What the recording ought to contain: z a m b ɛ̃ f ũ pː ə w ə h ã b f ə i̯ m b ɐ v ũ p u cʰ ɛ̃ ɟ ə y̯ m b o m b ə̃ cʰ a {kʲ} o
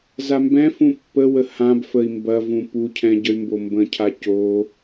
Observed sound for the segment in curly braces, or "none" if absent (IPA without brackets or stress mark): c